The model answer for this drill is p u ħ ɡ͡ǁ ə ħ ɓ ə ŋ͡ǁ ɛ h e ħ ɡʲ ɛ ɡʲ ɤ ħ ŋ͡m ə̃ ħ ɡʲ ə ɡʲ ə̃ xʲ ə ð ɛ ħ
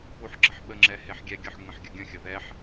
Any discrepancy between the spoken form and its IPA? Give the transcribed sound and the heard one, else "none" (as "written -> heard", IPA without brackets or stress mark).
none